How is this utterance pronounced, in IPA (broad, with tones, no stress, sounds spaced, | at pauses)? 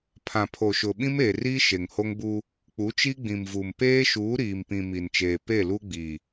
pʰ ã˨ pʰ o˨ ʃ ʊ˨ ɓ ĩ˦ m eː˨ r iː˦ ʃ e˨ ŋ h o˦ ŋ b u˦ | k͡p u˨˦ t͡ʃ i˦ ɡ͡b ĩ˨ m v u˨ m p eː˦ ʃ uː˨˦ ɾ iː˨ m p ĩ˨ m i˨ n t͡ʃ eː˨ p e˦˨ l u˦ ɡ͡b i˨